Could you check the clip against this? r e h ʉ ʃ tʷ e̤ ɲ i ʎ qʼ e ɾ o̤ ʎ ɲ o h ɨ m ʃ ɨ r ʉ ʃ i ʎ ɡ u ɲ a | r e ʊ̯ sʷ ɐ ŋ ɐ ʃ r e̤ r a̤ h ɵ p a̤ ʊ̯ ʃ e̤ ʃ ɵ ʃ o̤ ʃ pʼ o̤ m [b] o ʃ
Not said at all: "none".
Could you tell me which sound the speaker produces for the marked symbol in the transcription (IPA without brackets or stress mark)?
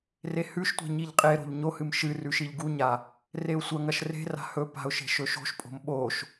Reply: ɓ